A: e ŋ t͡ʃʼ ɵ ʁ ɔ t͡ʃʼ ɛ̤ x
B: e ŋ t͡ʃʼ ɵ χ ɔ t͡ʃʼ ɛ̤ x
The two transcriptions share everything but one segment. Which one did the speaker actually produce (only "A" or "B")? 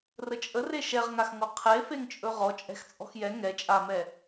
A